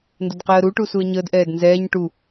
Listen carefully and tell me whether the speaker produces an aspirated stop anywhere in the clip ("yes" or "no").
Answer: no